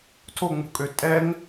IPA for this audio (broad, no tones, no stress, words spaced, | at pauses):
tʰoŋ͡mṳkʼø tʼɛŋ